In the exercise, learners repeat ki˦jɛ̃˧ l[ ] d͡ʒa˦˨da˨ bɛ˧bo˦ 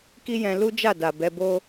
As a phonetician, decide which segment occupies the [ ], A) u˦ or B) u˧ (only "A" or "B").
A